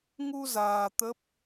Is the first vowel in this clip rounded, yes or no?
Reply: yes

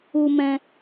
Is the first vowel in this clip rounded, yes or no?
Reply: yes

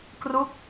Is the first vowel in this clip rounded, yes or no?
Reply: yes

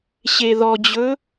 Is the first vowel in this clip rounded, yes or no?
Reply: no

